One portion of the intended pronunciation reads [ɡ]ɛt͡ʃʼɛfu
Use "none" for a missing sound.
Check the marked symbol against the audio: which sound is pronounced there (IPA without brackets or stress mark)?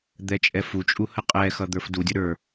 d̪